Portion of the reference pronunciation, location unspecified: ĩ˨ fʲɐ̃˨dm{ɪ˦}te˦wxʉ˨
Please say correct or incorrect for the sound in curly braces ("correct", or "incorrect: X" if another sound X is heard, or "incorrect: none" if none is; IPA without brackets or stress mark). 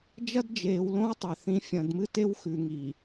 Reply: incorrect: ɨ˦